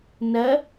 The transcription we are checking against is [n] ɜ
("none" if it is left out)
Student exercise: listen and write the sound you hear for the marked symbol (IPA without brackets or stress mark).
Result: n